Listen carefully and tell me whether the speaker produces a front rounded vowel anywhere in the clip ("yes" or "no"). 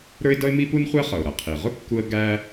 no